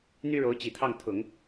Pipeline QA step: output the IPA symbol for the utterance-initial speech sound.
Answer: n̪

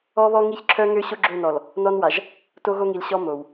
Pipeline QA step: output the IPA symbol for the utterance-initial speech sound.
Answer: ɔ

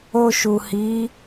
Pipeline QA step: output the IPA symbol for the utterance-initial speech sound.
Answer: o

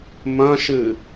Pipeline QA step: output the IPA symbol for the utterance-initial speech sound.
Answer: m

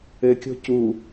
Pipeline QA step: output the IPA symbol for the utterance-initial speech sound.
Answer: ɘ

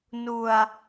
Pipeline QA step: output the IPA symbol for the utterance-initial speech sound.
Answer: n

